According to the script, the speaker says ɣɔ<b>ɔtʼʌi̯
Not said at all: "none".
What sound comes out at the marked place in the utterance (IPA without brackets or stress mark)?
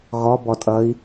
b